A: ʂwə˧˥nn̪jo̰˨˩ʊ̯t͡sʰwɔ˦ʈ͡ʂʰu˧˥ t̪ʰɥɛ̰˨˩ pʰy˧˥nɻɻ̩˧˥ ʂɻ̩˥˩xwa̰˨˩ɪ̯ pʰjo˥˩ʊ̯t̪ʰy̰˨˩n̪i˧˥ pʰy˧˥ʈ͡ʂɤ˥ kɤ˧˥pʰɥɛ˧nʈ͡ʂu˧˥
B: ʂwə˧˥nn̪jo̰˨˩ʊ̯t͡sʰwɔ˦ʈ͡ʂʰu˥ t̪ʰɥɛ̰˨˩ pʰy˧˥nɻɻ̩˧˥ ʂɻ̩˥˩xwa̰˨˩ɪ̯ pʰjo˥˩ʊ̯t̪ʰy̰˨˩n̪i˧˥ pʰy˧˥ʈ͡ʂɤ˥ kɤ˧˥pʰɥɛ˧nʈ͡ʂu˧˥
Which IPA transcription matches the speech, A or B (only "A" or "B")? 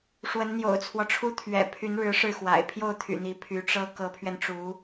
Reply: B